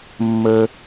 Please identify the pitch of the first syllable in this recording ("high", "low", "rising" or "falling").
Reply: high